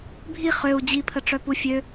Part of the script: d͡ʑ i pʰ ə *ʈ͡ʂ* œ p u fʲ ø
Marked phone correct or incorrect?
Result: correct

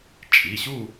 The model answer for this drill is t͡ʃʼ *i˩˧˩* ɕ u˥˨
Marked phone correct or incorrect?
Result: correct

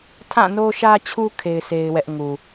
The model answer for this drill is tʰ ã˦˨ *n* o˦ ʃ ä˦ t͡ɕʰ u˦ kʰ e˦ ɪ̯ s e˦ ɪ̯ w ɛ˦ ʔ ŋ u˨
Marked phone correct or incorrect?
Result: correct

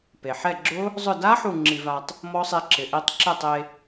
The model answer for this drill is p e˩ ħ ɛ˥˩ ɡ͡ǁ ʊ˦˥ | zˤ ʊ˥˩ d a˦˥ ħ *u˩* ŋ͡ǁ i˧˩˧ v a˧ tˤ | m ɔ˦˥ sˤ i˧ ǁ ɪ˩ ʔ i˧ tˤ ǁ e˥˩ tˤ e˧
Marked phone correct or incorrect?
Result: incorrect: u˥˩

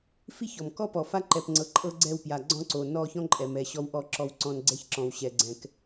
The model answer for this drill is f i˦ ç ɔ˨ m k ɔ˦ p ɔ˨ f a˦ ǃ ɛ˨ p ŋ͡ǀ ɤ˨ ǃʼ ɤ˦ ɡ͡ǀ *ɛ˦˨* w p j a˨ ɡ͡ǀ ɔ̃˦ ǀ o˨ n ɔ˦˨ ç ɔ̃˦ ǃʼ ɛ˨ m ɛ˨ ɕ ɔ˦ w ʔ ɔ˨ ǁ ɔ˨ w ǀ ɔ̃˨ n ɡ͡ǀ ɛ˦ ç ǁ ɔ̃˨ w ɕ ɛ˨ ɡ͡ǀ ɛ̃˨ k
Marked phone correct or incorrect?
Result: correct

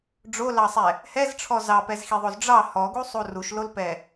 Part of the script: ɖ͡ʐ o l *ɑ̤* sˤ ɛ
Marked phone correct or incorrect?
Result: incorrect: ɑ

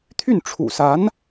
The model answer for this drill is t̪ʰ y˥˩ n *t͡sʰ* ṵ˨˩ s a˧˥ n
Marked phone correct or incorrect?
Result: incorrect: ʈ͡ʂʰ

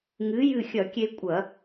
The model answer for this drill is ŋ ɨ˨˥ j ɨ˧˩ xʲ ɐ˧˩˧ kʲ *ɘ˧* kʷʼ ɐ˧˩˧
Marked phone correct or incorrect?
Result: incorrect: e˧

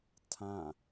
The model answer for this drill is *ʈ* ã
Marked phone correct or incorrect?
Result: incorrect: tʰ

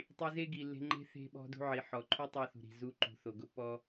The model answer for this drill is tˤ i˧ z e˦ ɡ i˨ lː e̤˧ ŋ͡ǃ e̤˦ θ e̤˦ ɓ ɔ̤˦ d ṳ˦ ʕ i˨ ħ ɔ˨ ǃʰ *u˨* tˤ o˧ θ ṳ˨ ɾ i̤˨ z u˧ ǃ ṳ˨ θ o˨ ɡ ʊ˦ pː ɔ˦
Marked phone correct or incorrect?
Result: incorrect: u˦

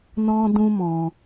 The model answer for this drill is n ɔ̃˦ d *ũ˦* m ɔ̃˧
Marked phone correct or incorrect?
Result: correct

